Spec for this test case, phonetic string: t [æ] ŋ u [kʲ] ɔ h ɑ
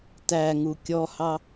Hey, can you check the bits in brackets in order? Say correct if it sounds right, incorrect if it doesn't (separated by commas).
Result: correct, correct